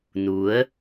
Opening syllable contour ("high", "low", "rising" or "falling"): rising